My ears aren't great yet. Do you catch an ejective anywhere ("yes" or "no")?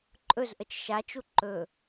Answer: yes